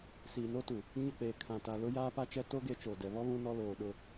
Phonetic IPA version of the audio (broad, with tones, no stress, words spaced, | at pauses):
siː˨no˦tu˨ | ɲʊ˦˨k͡peː˨kʰã˨ta˨ lʊ˦ jaː˦pa˦t͡ʃɛ˦ to˦ ɡe˦t͡ʃoː˨dɛ˨ βɔ˦ βũ˦nɔ˦ loː˨ɗʊ˦